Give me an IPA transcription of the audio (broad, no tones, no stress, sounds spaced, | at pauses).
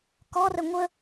k ɔ r ə ŋʷ ə